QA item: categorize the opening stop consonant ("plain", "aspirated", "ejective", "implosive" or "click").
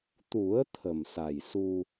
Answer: plain